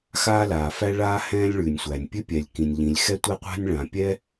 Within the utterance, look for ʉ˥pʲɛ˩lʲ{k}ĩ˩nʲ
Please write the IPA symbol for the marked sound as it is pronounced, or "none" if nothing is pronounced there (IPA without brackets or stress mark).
k